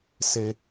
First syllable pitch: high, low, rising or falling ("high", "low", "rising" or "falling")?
high